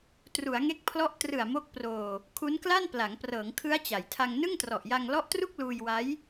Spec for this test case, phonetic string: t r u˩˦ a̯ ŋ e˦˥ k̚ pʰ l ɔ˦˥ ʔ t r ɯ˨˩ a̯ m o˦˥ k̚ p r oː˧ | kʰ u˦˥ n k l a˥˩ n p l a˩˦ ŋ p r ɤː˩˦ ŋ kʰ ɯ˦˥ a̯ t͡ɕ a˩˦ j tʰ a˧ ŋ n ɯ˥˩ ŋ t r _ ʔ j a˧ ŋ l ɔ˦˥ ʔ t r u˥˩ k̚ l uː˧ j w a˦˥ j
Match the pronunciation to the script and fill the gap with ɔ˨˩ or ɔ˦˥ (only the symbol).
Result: ɔ˨˩